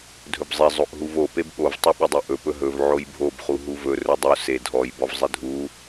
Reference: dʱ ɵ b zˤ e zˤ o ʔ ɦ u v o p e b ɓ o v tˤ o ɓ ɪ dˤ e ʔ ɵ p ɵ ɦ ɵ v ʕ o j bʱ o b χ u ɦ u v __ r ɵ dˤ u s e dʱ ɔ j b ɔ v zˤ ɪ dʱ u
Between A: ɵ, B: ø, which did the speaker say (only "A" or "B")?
A